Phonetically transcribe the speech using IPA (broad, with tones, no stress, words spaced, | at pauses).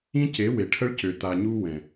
ĩ˦ce˨˦ we˨ʈʰə˦ɭ cø˨ta˨ ɲu˦ wɛ̃˨